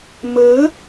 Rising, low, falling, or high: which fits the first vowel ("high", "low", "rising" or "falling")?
rising